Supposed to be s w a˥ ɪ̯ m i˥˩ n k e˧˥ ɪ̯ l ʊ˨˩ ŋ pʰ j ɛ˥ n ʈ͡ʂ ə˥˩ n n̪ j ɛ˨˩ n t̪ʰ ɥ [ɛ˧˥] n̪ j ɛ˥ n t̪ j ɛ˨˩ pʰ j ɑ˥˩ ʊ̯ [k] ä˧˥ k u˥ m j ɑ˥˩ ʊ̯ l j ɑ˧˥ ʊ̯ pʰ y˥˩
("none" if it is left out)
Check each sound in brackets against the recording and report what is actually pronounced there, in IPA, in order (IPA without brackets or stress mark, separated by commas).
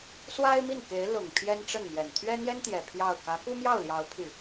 ɛ˥, k